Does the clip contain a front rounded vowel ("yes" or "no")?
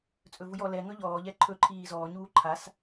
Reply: no